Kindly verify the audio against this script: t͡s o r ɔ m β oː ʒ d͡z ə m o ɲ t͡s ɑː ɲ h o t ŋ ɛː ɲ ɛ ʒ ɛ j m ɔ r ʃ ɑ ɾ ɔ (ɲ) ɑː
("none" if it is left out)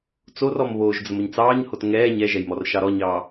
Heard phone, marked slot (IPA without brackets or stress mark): ɲ